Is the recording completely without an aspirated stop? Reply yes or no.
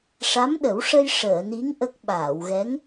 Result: yes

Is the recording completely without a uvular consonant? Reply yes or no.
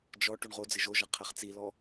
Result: no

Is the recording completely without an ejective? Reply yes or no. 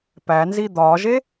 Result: yes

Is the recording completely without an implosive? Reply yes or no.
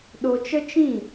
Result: no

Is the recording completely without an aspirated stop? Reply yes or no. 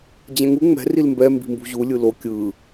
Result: yes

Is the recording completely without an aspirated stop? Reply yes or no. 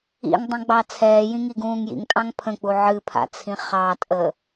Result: no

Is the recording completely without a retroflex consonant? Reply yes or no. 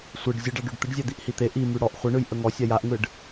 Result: no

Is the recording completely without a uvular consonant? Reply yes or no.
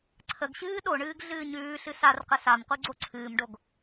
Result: no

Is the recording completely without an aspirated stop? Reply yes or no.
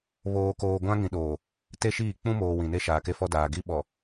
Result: yes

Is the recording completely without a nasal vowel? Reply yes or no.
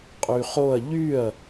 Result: yes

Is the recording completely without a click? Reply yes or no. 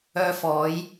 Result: yes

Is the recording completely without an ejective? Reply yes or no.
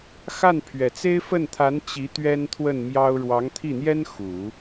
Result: yes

